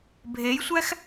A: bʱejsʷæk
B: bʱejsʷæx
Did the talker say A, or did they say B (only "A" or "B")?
B